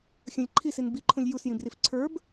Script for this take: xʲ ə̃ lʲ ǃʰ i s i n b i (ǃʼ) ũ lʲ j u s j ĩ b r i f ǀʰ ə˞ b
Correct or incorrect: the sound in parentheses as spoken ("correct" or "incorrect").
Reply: incorrect